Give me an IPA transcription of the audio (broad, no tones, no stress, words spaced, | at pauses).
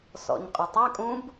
sɔ̰ɲqʼʊtˤɐkʼũb